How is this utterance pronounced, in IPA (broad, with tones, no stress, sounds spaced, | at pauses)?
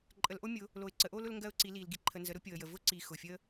ǃʼ ə˨˦ l ʔ o˦ mʲ ʊ˨˦ | l o˨ ɪ̯ ǀ ə˨˦ ʔ o˦ l ʊ˦ l ŋ ɡ ɜ˦ ʊ̯ ǀ i˨˦ l i˨ l ɡ i˨ ǃʰ ə˨ n z ə˨˦ ɾ ʊ˦ pʲ o˨ ə̯ j ə˨ v ʊ˦ ǀ i˨ x ʊ˨ fʲ ə˦